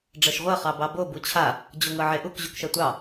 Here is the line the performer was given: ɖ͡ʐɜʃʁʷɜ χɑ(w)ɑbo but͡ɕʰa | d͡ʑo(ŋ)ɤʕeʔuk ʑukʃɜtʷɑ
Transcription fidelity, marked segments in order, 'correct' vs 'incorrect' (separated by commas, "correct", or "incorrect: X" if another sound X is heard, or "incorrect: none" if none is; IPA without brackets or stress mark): incorrect: b, correct